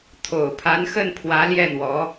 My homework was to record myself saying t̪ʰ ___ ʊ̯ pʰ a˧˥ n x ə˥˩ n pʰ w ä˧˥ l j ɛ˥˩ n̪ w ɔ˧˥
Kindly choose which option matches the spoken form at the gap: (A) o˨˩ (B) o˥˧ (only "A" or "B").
A